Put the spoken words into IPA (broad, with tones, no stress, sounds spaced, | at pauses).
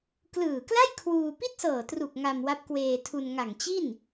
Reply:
k l ɯː˨˩ k l a˥˩ j kʰ w uː˧ p i˥˩ t̚ s ɤː˨˩ t r u˨˩ k̚ ŋ a˧ m w a˦˥ p̚ k w eː˧ tʰ u˧ n ŋ a˨˩ ŋ t͡ɕ i˥˩ n